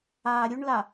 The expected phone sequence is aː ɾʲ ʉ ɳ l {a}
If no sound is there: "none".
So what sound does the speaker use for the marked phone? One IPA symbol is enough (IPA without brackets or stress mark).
a